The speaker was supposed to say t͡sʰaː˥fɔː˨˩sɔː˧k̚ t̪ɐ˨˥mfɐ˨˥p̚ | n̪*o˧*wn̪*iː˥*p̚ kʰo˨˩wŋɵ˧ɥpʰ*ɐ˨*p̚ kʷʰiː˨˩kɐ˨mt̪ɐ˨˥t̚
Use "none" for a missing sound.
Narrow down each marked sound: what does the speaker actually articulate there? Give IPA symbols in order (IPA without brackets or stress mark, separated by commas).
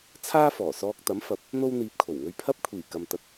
o˧, iː˨, ɐ˥